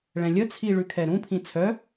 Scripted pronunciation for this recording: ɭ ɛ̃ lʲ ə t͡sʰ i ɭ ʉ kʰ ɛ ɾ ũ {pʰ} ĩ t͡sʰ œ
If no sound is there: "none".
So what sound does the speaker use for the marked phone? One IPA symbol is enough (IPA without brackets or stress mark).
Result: pʰ